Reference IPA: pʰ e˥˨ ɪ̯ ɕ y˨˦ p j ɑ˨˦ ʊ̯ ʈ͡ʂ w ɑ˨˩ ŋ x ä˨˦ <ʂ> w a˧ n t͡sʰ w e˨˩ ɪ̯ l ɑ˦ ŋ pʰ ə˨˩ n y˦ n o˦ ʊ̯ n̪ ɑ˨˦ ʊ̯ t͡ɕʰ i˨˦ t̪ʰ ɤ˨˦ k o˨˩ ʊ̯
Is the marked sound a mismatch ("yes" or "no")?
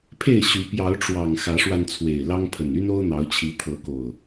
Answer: no